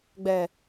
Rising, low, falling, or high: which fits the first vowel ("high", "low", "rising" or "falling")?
low